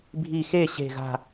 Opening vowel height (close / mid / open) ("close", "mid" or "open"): close